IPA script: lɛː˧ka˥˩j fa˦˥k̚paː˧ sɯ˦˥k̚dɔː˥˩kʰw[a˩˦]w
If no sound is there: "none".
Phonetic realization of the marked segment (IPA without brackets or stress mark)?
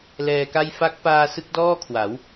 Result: a˩˦